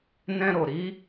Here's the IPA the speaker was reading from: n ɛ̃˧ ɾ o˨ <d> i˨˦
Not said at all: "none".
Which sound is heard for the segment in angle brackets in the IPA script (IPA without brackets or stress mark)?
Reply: ɾ